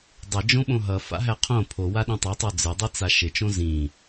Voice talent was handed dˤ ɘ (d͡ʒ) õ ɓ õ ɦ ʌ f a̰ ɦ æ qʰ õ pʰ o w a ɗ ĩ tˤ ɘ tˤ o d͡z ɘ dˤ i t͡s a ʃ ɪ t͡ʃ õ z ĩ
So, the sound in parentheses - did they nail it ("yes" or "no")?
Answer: yes